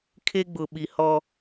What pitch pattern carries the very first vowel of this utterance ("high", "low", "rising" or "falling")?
high